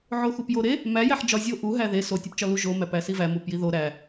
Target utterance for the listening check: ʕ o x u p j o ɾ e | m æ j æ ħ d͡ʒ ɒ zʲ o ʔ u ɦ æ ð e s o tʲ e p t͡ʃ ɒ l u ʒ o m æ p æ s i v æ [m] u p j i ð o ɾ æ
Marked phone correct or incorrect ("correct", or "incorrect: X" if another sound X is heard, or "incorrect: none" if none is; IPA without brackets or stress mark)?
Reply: correct